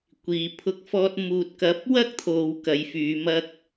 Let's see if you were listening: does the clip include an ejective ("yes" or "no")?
no